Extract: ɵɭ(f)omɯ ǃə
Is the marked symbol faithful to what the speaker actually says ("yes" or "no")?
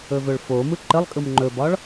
yes